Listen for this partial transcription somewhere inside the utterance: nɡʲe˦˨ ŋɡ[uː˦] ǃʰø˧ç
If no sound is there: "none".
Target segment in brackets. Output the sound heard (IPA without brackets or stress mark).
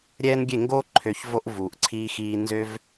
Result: oː˦